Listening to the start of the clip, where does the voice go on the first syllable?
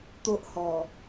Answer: high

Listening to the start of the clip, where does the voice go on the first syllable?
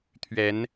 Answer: rising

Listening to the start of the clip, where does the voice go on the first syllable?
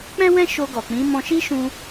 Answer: high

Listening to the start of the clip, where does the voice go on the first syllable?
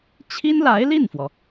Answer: high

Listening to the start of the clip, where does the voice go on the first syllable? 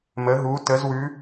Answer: rising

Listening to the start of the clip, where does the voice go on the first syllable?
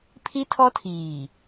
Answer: high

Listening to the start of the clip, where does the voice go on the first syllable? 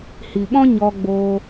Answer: low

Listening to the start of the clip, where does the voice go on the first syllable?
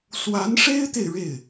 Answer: rising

